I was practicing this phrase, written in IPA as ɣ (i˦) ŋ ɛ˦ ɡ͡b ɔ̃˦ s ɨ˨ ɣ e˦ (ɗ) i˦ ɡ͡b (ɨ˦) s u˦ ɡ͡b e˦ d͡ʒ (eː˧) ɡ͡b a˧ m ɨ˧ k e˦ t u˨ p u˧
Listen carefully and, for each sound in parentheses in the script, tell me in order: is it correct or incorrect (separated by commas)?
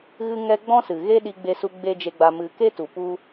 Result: incorrect, correct, incorrect, incorrect